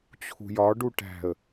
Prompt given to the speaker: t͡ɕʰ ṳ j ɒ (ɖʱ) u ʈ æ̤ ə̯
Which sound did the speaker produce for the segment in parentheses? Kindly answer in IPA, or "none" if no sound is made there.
ɖ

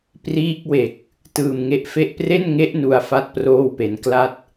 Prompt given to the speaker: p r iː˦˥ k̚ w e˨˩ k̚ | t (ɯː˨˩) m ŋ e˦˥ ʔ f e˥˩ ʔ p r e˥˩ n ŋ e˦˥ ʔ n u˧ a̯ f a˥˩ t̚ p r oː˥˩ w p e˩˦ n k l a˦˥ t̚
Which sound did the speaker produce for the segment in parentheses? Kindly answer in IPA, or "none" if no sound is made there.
ɯː˨˩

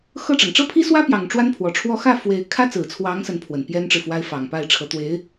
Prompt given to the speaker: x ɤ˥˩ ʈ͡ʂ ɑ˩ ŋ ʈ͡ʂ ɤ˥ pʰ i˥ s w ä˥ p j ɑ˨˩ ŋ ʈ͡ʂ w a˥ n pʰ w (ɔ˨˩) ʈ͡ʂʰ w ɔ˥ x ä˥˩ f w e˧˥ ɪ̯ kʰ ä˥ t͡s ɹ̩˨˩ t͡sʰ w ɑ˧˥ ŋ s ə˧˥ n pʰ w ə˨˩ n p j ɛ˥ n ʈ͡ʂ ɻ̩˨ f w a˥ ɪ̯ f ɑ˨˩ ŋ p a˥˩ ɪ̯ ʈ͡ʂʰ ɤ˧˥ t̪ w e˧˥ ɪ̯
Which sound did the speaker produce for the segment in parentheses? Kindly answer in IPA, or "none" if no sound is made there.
ɔ˨˩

